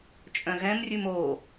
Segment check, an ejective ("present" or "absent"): present